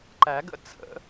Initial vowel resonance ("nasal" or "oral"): oral